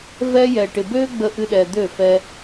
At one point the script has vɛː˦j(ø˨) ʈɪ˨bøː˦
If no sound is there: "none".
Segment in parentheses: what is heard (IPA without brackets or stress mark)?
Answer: ɛ˨